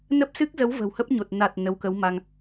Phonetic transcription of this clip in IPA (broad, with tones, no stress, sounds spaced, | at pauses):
n ə˦˥ p̚ s ɨ˦˥ k̚ z ə˨˦ w v ə̤˨˩ w h ə˦˥ p̚ ɲ o˨˩ t̚ n a˨˩ t̚ n ə˨˦ w k ə˨˦ w m a˧ ŋ